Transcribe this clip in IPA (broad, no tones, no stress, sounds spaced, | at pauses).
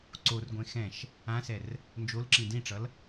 ǀ o r ɡʷ ẽ x ɛ̃ ʃ | ã s ɛ r | n d͡ʒ o l ǁ ĩ d ĩ ʈ͡ʂ ʌ l